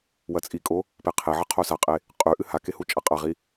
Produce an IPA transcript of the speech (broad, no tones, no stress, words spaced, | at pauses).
wɐt͡sʼikʼo | peqʰeʕɐ qʰosaqʼe | qʼʉ ʔɨhake hut͡ʃʼaqʼaʁi